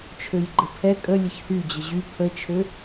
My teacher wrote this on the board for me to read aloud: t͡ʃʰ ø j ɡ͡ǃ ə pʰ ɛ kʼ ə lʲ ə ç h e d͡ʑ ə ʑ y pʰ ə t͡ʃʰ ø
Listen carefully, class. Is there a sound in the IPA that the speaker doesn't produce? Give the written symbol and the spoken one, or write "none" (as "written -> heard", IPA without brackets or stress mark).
e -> y